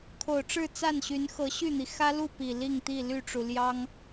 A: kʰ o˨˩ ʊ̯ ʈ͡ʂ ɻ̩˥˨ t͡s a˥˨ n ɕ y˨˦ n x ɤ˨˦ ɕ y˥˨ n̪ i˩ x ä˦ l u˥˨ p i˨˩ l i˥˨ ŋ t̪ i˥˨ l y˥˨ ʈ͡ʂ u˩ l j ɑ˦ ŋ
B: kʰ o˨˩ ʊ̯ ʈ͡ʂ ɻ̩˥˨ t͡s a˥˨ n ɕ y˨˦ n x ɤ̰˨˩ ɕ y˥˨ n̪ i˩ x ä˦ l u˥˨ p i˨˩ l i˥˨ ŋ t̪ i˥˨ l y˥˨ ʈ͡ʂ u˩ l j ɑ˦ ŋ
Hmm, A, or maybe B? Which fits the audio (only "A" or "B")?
A